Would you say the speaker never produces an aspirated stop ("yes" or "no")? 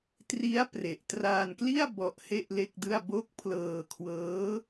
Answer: no